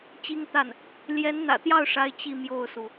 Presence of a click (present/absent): absent